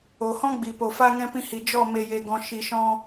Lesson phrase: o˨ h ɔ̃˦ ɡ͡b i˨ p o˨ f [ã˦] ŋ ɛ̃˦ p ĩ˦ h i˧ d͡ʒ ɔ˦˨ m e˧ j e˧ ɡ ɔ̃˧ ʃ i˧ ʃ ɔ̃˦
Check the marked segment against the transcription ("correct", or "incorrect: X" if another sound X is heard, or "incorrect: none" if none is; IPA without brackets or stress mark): incorrect: a˦